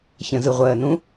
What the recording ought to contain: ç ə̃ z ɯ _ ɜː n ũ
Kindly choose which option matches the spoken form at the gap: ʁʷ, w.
ʁʷ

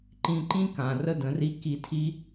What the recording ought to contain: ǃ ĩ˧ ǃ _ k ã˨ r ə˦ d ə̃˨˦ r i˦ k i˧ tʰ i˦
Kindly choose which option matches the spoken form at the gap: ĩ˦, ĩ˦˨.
ĩ˦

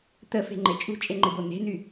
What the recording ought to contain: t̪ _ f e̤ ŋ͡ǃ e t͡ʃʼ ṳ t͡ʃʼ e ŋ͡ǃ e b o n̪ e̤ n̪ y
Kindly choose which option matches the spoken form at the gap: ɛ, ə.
ə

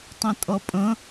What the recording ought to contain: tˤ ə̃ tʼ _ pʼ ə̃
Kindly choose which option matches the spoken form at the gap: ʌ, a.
ʌ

